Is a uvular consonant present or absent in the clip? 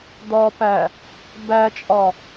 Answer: absent